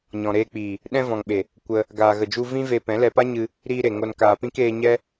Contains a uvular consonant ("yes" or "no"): no